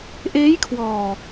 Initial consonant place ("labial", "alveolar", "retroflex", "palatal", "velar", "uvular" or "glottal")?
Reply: glottal